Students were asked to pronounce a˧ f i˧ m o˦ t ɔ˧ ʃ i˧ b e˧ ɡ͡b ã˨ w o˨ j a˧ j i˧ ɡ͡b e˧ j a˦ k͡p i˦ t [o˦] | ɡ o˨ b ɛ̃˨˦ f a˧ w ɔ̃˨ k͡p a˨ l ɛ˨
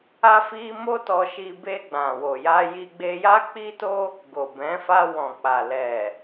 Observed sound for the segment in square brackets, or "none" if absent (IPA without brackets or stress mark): o˦